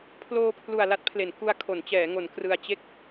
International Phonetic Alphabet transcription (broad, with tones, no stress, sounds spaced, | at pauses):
pʰ l oː˧ pʰ l u˨˩ a̯ l a˦˥ t̚ pʰ l e˩˦ n k u˧ a̯ kʰ o˩˦ n t͡ɕ ɛː˩˦ ŋ o˩˦ n k r ɯ˧ a̯ t͡ɕ e˦˥ k̚